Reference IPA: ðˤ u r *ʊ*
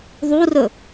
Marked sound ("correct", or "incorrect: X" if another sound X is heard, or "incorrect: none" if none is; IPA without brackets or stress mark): incorrect: ɵ